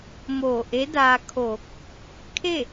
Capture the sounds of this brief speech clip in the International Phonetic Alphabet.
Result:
m oː˧˩ ʔ e˧˥ d aː˧ kʰ oː˧˩ k̚ | kʰ e˥˨

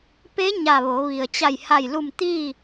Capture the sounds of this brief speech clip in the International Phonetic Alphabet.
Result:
p e˧˥ ɲ a˧˩ ʋ o˩˧ ʋ i˩ ə̯ t͡ɕ a˧˩ j h a˧˩ j l u˧˩ m t̪ i˥˨

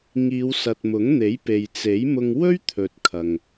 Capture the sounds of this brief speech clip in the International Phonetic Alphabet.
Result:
ŋ iː˨˧ w s ɐ˨ t̚ m ʊ˨˥ ŋ n̪ e˨˥ j p e˨ j t͡s e˨˥ j m ʊ˧ ŋ w ɵ˥ ɥ t̪ʰ ɵ˨ t̚ kʰ ɐ˨ ŋ

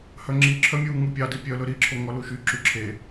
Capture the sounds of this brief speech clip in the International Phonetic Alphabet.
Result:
h œ ŋ͡ǁ i ǁʰ œ mʲ uː ŋ u pʲ ɑ d i pʲ œ l ɵ ɾ i ǁʰ o ŋ ɔ l u ʃ y ǁ y ǁʰ e

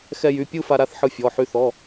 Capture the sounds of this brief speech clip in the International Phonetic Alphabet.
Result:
x ɛ˧ j y˩˧˩ pʲ ɯ˥˧ f a˧ ɾ a˥˧ θ ħ ɯ˧ fʲ ɔ˩˧˩ ħ y˧ θ ɔ˩˧˩

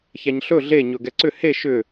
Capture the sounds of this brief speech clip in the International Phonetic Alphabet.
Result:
ç æ ɲ ɬ ɵ ɮ e ɲ ɵ ɡ ɛ ǀ ʏ h e ʃ ʏ

